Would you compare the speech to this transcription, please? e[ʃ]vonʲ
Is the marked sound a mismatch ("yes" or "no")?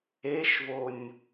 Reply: no